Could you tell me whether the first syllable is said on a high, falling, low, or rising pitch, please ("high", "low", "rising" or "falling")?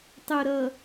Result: low